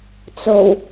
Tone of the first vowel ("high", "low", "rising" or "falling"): low